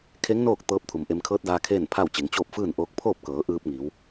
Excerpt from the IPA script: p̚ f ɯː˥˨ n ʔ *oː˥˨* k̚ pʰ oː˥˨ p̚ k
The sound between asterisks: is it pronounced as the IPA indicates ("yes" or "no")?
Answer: no